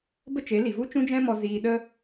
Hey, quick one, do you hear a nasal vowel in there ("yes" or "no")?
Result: yes